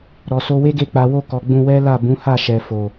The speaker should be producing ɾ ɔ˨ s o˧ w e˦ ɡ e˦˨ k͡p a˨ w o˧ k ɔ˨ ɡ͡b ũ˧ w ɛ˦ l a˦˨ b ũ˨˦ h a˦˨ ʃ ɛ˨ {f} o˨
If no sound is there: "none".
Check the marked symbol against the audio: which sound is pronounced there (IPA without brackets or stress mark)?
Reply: f